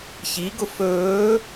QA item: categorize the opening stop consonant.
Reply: plain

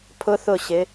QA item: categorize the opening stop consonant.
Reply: aspirated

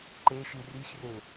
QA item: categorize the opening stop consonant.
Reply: click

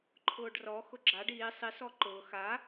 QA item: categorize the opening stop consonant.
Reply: click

